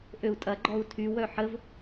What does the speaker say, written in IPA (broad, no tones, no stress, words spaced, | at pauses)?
ʔøu̯tʼɐɡ͡ǃɔu̯ tʰywœ ħəv